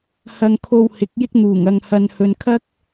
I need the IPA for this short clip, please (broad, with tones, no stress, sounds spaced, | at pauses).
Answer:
h ɐ˧ ŋ kʰ o˧ w h ɪ˨˥ k̚ j ɪ˥ k̚ n̪ uː˨˩ ŋ ɐ˨ ŋ h ɐ˨ n h ɵ˨ n kʰ ɐ˥ k̚